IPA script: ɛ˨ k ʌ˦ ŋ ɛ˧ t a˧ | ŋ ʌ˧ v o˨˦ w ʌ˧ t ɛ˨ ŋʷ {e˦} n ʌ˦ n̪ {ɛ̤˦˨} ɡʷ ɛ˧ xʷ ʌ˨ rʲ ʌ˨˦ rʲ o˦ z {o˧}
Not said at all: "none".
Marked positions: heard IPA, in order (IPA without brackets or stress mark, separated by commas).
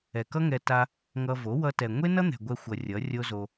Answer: e˦, ɛ̤˨, o˧